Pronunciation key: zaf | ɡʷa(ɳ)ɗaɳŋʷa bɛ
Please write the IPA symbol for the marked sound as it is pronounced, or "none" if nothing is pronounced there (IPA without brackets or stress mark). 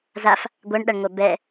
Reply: ɳ